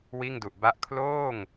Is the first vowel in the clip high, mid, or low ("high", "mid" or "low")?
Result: high